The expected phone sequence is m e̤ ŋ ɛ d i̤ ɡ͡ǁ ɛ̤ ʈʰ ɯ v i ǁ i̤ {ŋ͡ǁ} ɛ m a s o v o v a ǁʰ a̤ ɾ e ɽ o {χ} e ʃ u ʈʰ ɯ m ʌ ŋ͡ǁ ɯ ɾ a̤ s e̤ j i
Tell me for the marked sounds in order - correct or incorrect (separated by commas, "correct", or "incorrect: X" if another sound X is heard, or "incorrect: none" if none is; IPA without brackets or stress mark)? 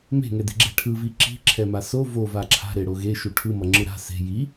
incorrect: ǁʰ, incorrect: ɣ